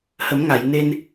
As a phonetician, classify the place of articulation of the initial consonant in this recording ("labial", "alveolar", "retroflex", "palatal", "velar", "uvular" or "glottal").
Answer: glottal